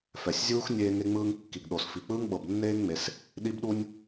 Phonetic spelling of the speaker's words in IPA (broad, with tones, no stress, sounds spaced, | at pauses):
f ɛ˩ sʲ zʲ uː˥ x nʲ eː˥ ŋ e˥ ŋ͡m ɯː˥ ŋ kː i˩ ɡ ɗ o˩ s f i˩ k͡p ɯː˥ ŋ ɓ ɤ˩ b nː eː˥ ŋ ŋ͡m e˩ s | ɗ i˥ b ɗ u˥ nʲ